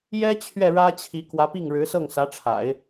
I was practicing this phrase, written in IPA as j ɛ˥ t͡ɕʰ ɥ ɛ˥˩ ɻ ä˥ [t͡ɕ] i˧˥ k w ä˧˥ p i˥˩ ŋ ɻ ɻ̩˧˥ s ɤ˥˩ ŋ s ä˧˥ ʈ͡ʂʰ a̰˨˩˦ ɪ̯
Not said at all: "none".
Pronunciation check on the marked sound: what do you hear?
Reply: t͡ɕʰ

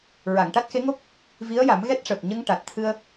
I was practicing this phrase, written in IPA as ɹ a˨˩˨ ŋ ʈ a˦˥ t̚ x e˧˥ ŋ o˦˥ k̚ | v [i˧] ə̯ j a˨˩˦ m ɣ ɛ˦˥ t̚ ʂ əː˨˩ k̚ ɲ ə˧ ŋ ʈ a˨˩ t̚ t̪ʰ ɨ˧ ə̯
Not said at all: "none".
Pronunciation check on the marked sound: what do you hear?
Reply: i˧˥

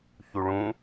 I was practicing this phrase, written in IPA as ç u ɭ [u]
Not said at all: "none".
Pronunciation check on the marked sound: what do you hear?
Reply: ũ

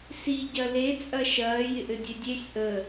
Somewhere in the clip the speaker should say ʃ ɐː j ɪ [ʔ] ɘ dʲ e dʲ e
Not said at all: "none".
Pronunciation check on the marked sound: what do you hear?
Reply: ʔ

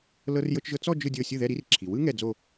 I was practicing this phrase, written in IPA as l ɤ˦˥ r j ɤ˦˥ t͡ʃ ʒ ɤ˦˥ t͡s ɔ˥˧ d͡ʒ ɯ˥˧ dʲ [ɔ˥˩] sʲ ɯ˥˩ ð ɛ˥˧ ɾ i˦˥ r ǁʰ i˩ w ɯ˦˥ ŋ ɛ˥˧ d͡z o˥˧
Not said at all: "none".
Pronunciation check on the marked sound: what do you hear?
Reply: ɤ˥˩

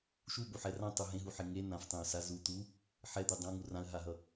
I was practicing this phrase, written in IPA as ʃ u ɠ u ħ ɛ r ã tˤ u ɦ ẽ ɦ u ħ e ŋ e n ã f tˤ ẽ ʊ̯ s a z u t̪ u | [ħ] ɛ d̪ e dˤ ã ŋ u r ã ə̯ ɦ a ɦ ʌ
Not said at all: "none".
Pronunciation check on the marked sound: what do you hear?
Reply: ħ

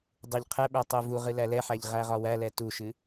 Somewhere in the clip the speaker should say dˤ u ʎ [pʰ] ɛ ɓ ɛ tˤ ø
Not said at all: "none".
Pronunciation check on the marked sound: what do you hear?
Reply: qʰ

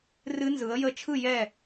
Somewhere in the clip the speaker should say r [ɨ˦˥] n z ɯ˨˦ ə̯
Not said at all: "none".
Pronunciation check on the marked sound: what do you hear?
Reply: ɨ˦˥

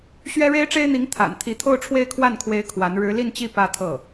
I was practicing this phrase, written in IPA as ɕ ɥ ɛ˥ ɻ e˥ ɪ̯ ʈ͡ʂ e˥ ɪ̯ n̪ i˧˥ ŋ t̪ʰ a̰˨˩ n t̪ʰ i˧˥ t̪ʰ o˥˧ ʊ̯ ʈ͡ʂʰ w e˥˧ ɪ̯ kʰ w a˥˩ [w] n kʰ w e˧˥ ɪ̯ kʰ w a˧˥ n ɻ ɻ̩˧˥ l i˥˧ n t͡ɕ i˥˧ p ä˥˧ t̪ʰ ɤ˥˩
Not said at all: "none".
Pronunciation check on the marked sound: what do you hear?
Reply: none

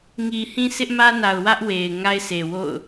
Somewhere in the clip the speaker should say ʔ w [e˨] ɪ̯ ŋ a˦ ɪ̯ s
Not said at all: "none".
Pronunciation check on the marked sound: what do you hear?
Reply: e˨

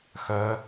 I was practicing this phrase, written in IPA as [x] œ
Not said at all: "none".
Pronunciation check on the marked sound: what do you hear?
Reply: x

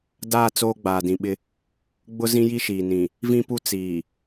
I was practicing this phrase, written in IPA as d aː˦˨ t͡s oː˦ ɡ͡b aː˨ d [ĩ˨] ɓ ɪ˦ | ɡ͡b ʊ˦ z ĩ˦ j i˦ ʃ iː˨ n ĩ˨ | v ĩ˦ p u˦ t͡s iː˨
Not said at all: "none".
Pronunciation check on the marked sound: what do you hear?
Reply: ĩ˨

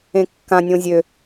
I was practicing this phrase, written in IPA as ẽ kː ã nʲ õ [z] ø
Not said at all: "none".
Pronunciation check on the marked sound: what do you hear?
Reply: zʲ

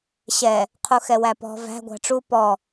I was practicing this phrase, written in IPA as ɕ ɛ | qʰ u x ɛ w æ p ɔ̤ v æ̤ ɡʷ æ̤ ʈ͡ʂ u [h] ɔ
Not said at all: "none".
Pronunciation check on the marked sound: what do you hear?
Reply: p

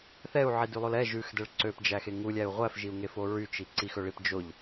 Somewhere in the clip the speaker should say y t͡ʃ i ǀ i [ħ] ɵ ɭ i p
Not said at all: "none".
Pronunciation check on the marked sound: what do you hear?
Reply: x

